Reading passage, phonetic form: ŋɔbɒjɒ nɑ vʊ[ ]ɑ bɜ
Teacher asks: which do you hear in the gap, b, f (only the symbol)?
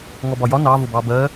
b